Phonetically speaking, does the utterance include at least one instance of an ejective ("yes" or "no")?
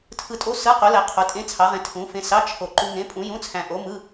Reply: yes